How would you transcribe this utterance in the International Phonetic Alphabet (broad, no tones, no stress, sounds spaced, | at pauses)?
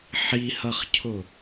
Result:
ħ i h ʌ χ cʰ ʊ